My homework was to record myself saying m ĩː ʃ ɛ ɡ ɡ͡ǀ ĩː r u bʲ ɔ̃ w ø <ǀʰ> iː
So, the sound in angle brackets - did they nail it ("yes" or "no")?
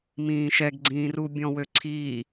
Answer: yes